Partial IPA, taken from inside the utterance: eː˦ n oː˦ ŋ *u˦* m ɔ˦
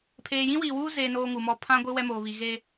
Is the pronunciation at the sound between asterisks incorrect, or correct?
incorrect